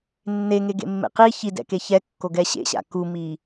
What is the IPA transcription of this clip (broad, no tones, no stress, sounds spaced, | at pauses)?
nː e ŋ e ɡ ḛ mː ḛ q i ç i d ɛ̰ k e ç ɛ kː o ɡ ɛ ɕ ḛ ɕ a̰ k u m i